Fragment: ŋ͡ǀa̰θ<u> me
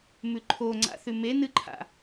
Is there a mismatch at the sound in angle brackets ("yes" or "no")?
yes